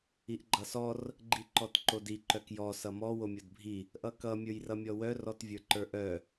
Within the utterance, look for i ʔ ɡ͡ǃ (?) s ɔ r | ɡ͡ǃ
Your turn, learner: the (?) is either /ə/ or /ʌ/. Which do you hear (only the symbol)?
ʌ